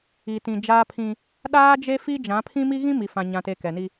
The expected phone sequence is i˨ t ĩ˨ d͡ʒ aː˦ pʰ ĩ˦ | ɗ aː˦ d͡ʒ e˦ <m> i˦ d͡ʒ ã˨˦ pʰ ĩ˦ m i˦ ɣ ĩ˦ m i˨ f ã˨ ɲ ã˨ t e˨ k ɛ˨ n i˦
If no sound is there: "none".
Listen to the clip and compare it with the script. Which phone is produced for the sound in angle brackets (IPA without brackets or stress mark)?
f